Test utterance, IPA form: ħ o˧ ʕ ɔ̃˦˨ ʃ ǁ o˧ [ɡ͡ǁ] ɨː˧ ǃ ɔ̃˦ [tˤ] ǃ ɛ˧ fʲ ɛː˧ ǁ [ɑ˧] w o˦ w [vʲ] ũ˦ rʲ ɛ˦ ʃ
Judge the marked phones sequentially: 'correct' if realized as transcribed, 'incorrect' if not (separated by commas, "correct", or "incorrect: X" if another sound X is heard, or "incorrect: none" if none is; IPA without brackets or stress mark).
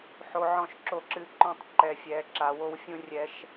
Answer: incorrect: ǁ, correct, incorrect: a˧, incorrect: fʲ